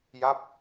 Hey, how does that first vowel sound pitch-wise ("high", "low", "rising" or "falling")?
falling